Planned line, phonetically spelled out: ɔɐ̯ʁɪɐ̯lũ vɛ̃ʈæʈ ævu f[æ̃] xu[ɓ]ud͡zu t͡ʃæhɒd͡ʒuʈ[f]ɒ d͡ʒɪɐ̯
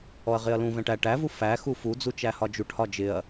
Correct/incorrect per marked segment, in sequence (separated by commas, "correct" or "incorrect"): incorrect, incorrect, incorrect